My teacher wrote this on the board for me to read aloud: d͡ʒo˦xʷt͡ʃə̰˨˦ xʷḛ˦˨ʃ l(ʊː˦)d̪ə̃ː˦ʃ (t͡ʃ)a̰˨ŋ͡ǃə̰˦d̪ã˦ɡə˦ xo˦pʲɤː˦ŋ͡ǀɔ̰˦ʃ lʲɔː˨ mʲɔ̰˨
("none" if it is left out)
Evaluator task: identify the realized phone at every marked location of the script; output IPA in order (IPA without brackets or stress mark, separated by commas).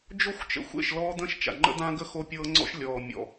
ɔː˦, t͡ʃ